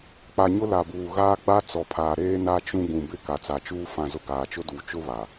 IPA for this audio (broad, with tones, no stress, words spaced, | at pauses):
k͡pa˨ɲʊ˦ la˨buː˨ ɣaː˦ɡ͡ba˦ t͡sɔ˨pʰaː˨ ɾeː˦na˦ t͡ʃũ˦ ɡũ˨bɪ˦˨ ka˨t͡sa˨t͡ʃuː˦ fã˨zʊ˨ ɡaː˨t͡ʃʊ˦duː˨ t͡ʃʊ˦βa˨